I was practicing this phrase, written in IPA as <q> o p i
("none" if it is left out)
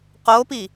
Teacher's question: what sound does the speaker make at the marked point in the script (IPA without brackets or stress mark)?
q